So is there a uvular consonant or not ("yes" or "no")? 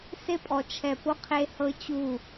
yes